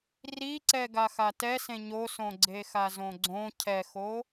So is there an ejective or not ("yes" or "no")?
no